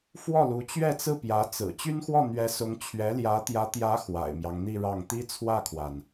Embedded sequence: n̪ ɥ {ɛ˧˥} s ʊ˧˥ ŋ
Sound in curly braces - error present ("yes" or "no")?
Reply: no